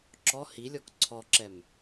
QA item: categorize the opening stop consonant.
click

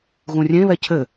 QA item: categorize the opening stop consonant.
aspirated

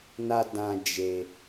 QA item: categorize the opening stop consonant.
plain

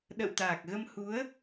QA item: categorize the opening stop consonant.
implosive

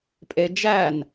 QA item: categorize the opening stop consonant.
ejective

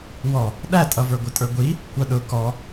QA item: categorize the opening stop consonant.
implosive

